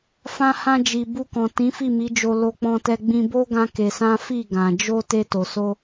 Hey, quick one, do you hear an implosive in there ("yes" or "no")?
no